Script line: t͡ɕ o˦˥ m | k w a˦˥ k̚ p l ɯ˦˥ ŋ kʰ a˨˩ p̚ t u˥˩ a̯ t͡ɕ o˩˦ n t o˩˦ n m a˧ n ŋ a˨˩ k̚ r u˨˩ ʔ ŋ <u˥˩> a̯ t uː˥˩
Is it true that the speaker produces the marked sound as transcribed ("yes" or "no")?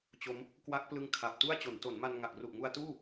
no